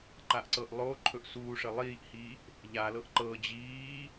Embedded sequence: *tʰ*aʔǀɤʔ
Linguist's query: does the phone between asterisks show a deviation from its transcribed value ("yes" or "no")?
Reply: yes